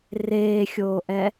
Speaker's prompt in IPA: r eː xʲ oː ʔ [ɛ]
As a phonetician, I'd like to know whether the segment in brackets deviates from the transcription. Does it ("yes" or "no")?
no